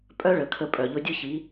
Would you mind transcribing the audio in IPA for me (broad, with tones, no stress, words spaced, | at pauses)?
pʼœ˦ ɭə˨kʰə˧pʼœ˨ ʎʊ˧dʲʊ˦çi˨˦